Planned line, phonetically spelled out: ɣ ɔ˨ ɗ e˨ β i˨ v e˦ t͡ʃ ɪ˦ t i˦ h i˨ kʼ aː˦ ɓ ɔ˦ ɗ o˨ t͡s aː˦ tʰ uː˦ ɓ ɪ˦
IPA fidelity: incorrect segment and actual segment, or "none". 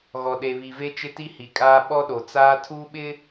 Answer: none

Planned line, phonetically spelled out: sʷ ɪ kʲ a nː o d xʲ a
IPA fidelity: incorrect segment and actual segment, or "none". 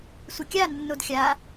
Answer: none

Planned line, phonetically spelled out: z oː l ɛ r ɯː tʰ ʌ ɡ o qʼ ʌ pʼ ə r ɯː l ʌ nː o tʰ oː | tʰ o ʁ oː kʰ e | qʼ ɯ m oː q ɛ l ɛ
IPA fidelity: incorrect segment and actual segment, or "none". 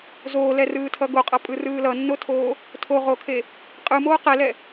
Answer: ə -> ɯ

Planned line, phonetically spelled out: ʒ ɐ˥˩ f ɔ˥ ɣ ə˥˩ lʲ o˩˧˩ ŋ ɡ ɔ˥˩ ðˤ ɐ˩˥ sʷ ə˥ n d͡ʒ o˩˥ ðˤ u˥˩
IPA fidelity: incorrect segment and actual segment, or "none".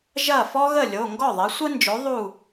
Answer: none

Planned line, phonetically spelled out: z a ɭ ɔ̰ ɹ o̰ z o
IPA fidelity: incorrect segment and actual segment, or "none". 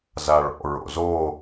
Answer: none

